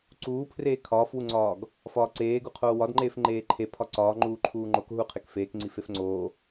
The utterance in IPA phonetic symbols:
ǀ uː pʰ r eː kʰ ɒː f w u ŋ͡ǀ ɒː ɡ | f ɒː ǀ eː ɡ u qʰ oː w ɒ d ŋ͡ǃ eː f ŋ͡ǃ eː ǃʰ e pʰ ɒ ǀ ɒː ŋ͡ǃ uː ǃʰ uː ŋ͡ǃ o k ɦ u qʰ e k f eː k ŋ͡ǀ i f e f ŋ͡ǀ oː

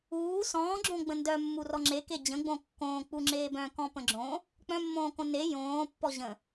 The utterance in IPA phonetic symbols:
uː s ɔ̃ː ɡ͡ǁ õ ɡ͡b ə̃ n d œ mː u r ɔ ŋ͡ǁ e k e d͡ʑ ə̃ ɡ͡b õ kː õː k͡p u ŋ͡ǁ eː b œ̃ k ɔ̃ p ə̃ ɡ͡ǁ õ | k͡p œ̃ mː õː k õ n e j õː pː ɔ ʑ ə̃

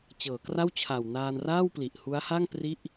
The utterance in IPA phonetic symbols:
t͡ɕ ɤː˩˦ k r a˥˩ w t͡ɕʰ a˨˩ w n aː˧ n r aː˥˩ w p l i˨˩ ʔ h u˦˥ a̯ h a˥˩ ŋ p r i˥˩ ʔ

